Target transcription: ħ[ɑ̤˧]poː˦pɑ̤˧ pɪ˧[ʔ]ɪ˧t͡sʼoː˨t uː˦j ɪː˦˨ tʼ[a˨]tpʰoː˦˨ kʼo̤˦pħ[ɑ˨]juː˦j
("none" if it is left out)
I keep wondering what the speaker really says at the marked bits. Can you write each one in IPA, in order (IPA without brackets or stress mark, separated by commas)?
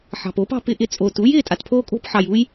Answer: ɑ̤˨, ʔ, a˨, ɑ˨